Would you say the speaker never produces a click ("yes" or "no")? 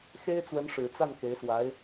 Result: yes